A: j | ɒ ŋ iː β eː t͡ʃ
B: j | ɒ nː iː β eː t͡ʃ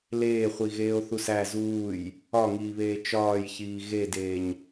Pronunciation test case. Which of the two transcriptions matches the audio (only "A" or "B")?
A